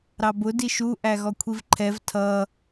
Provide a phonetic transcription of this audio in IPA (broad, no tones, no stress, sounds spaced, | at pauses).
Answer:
ɾ ɑ b ʊ d i ʃ u ʔ æ ɣ ɔ kʷʰ i v ǃʰ ɛ v tʰ ʌ